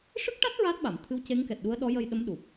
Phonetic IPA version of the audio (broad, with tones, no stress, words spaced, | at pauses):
ʂɨ˦˥k̚ʈa˦˥t̚ ɹa˦˥t̚ɓa˨˩˨m t̪ʰɨ˧˥w ce˧˥ŋkɛ˨˩t̚ɗu˧˥ə̯ɗɔ˧˥ jə˧jɗə˧˥mɗu˨˩p̚